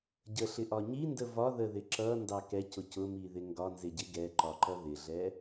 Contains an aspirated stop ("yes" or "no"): no